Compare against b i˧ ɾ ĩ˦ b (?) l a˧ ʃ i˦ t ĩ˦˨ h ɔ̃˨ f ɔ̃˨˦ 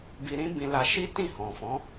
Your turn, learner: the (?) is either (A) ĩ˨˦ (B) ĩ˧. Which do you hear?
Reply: B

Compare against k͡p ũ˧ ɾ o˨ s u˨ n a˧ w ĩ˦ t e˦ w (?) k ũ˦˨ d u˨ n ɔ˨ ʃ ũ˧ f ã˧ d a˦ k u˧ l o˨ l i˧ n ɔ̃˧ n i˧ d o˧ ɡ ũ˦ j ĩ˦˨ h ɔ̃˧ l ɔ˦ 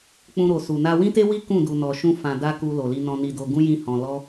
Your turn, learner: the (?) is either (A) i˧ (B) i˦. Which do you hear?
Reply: B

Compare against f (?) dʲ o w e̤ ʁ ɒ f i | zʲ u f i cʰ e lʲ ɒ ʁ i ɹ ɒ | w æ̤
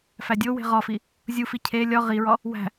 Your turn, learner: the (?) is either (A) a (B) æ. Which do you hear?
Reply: B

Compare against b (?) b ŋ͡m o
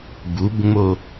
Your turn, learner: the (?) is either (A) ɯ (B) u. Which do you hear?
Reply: B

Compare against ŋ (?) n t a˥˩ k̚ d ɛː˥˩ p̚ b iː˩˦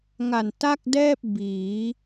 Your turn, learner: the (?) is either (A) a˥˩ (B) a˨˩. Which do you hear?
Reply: B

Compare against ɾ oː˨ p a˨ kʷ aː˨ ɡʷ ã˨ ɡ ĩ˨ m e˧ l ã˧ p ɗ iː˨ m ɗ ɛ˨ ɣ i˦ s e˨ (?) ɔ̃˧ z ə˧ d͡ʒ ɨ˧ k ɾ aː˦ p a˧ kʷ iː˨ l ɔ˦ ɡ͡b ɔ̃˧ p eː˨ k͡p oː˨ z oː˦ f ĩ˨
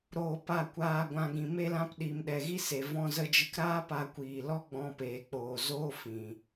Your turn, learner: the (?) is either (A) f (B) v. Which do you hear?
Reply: B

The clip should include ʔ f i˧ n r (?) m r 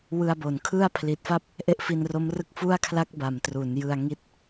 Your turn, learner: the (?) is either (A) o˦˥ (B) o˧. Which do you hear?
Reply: A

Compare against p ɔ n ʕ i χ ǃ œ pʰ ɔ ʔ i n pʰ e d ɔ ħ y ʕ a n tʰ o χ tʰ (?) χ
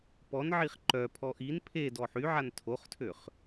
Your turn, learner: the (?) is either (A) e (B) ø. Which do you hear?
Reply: B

